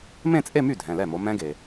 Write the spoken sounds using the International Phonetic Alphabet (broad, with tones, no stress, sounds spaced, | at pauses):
m ẽ˥˧ t͡sʼ e˥˧ m y˥˩ dʱ ɛ̃˩˧˩ l ɛ˥˩ m o˨˦ m ɛ̃˦˥ ɡ e˩